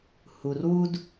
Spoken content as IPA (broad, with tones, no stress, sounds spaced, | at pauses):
h u˨ r w u˦ d